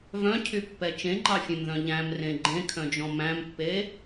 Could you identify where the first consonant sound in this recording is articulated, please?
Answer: labial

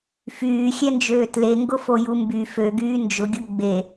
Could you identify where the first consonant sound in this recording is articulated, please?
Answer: labial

